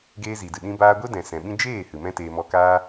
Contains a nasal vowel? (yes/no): yes